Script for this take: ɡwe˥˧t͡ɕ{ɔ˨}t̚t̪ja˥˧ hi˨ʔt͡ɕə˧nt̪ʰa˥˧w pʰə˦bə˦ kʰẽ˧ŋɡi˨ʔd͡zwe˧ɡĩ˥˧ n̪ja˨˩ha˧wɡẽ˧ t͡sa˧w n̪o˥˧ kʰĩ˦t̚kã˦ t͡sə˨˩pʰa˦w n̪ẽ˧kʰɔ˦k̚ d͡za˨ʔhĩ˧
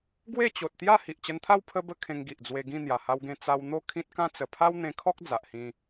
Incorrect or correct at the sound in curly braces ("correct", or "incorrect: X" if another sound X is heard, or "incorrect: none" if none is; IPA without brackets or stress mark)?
incorrect: o˨